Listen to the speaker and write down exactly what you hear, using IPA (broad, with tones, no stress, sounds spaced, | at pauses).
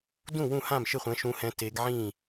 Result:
d ũ˥˩ w ũ˥˩ h ã˥˩ m ʃ ɪ˥˩ χʷ ɛ̃˨˦ ʃ ũ˨˦ h ɛ̃˨˦ t e˨˦ ɡ ʕ ĩ˥˩